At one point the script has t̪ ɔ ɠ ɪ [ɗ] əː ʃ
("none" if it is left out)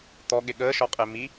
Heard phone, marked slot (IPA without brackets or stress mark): ɠ